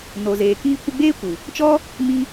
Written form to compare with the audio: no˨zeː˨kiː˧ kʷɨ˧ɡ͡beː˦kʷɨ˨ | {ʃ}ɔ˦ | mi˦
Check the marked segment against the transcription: incorrect: t͡ʃ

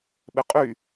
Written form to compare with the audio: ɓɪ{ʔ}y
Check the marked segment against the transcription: incorrect: qʼ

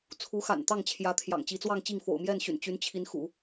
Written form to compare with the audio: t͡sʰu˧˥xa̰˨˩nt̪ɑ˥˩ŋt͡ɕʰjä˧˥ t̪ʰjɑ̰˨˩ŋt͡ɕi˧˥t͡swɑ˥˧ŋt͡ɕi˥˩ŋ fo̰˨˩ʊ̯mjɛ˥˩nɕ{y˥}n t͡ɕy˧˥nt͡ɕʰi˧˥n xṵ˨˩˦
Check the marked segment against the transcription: incorrect: y̰˨˩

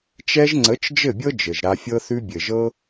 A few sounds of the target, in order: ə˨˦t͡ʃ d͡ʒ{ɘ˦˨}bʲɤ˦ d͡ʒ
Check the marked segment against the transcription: correct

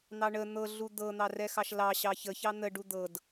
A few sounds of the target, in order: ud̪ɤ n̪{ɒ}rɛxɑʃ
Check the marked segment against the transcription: incorrect: ɑ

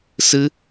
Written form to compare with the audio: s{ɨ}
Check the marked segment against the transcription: correct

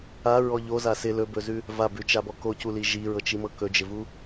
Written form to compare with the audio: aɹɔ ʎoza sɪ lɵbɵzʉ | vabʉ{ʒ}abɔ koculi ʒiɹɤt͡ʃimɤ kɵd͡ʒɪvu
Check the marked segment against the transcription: incorrect: t͡ʃ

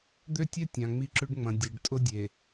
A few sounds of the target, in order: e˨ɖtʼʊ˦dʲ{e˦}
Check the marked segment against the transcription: incorrect: e˨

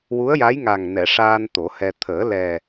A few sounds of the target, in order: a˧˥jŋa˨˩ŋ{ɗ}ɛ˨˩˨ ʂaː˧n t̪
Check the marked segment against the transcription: incorrect: n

